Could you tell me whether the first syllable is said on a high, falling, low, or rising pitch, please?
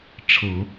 low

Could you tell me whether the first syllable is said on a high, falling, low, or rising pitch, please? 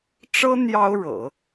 high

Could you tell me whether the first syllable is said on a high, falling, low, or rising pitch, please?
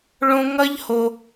high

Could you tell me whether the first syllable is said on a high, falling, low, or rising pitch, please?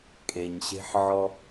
low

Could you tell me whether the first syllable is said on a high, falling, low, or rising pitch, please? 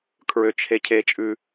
low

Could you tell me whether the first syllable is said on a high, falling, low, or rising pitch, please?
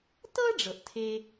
high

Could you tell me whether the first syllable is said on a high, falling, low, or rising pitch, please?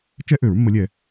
high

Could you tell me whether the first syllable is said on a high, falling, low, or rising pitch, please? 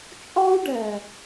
high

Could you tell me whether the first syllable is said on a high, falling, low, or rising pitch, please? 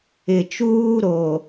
low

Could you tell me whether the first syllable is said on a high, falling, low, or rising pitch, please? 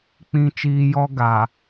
high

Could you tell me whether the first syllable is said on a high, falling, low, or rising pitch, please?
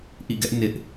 falling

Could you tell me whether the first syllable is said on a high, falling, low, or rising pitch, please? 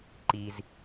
high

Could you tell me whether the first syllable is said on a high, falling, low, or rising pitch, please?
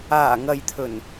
low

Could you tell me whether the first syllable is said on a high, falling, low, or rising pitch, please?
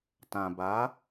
low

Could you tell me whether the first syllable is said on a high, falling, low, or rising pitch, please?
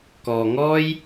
low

